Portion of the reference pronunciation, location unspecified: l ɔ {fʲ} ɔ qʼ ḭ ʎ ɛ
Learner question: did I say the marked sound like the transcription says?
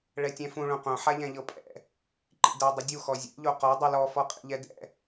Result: no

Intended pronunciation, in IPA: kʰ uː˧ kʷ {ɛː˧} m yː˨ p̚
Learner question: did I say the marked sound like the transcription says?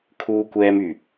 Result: yes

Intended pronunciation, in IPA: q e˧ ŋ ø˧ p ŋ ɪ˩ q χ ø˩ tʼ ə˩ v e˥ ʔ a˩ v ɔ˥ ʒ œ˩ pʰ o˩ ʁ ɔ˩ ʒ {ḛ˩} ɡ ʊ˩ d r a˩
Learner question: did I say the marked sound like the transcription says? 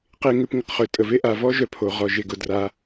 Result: no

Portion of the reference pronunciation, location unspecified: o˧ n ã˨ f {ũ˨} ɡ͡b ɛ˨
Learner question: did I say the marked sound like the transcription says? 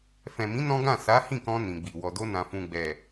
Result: yes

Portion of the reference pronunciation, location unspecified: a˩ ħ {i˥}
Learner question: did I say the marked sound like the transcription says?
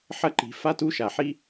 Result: yes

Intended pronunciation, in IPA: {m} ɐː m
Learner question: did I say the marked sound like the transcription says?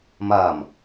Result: yes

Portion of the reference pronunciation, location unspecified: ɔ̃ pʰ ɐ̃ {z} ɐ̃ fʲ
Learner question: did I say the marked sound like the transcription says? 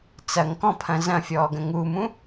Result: yes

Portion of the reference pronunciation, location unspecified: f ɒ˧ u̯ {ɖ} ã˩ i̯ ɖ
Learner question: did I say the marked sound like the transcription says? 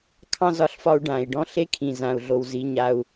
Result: yes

